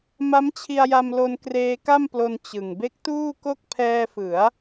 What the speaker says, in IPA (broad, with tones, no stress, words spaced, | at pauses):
ma˦˥mt͡ɕʰi˧a̯ja˧mlo˧n kreː˧ka˥˩mplo˧n t͡ɕɯ˨˩ŋ be˦˥k̚tuː˥˩ko˥˩k̚ pʰɛː˧fɯ˩˦a̯